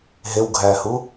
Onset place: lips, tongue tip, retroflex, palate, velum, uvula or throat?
throat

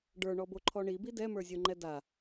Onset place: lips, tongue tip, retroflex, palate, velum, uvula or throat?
retroflex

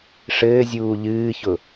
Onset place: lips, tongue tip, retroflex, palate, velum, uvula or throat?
retroflex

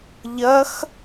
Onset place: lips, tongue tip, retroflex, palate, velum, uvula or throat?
palate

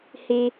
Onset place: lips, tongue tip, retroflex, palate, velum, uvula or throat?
throat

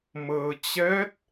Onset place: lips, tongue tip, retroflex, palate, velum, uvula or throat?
lips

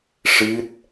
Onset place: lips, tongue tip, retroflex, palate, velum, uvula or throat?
retroflex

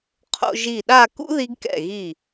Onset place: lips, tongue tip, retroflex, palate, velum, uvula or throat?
uvula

